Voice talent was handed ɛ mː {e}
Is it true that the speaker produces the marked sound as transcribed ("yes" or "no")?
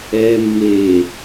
yes